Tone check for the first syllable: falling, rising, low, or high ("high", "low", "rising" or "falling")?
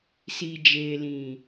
low